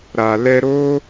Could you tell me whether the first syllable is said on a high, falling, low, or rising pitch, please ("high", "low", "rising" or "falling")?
low